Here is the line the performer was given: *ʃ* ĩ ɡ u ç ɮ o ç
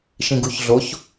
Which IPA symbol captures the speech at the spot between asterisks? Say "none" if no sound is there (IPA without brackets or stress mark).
ʃ